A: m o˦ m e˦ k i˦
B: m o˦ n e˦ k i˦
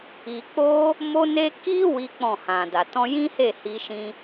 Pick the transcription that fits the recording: B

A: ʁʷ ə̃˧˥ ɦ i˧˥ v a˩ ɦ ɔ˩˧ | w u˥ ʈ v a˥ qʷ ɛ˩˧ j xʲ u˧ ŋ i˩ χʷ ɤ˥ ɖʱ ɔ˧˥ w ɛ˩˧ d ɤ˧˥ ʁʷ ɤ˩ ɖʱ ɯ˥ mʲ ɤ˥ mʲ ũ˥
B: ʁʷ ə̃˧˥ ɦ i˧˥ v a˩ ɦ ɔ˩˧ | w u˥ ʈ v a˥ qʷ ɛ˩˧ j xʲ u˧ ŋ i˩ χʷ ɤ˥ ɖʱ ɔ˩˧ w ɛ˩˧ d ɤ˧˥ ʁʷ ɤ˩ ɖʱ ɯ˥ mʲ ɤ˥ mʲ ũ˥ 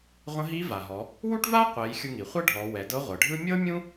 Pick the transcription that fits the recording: B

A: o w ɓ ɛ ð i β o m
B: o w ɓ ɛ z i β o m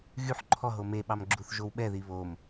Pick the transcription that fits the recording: A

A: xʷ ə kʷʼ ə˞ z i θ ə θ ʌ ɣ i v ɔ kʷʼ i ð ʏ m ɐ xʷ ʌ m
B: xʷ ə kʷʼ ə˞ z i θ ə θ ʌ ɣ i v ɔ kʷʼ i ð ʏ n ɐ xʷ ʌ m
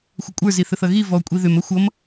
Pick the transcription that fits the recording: A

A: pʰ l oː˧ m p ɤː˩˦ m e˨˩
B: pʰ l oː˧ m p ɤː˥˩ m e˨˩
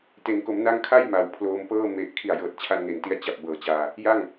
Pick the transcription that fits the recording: B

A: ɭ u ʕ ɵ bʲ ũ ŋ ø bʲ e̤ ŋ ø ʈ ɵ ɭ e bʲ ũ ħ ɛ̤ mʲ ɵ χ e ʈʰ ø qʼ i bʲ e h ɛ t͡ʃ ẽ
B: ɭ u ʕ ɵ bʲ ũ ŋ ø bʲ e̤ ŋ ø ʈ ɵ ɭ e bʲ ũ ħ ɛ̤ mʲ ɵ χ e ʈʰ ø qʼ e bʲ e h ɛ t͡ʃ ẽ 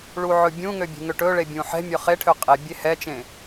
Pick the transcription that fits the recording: B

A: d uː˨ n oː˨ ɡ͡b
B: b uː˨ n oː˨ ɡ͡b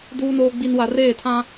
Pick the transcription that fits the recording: A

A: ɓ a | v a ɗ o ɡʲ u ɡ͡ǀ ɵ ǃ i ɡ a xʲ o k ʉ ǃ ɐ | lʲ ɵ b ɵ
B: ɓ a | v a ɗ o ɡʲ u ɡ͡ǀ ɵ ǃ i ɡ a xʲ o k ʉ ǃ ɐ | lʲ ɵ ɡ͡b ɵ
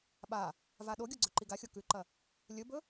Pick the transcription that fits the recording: A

